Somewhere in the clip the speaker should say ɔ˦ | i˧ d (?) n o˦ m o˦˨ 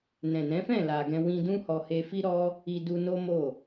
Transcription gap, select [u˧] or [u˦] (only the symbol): u˧